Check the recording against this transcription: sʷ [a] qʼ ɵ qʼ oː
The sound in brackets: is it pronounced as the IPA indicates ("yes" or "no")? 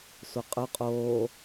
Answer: yes